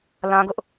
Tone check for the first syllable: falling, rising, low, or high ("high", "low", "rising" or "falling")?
high